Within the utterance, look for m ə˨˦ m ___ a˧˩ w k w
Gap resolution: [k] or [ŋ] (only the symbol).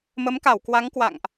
k